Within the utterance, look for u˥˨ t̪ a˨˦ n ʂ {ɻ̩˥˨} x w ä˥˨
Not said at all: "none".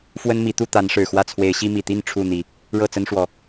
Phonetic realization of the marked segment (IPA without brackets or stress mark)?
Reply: ɻ̩˨˩